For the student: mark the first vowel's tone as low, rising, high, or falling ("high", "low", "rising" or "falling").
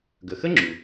low